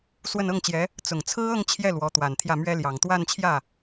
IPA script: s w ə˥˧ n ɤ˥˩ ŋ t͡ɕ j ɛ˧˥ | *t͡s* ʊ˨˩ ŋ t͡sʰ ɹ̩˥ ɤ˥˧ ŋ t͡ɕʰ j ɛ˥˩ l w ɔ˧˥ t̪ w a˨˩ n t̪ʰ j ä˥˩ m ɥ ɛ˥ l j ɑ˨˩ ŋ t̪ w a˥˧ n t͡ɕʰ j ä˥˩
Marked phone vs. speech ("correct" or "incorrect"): correct